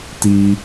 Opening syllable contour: high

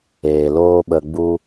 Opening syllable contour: low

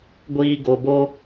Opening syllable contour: low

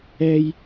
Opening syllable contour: high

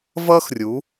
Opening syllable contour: high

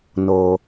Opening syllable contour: low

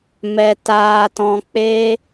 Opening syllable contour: low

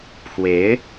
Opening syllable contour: rising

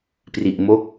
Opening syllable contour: low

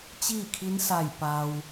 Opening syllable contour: falling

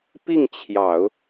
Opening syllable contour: falling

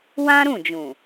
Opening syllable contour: high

